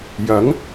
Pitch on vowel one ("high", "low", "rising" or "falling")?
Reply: rising